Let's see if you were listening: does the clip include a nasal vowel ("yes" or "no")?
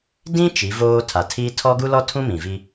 yes